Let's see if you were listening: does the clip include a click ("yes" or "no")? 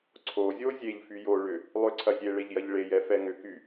yes